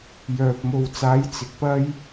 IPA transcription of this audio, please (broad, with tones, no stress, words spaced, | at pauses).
jœː˨p̚mo˨wt͡saː˨˥j t͡sɪ˨k̚pɐ˥j